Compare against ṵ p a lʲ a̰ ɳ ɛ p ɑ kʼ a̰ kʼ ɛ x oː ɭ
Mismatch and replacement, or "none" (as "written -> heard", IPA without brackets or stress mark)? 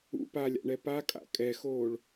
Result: ɑ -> a